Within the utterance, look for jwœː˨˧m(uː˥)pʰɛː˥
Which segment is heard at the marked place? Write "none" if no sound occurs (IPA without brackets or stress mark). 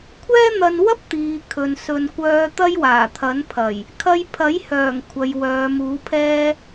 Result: uː˨˥